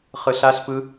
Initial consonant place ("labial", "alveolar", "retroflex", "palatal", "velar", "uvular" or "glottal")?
uvular